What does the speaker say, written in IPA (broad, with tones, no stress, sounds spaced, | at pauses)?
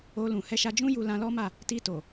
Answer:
o˧ l ũ˨ h ɛ˧ ʃ a˧ d͡ʒ ũ˦ j u˧ l ã˧ l ɔ˦ m a˦˨ | t i˧ t o˨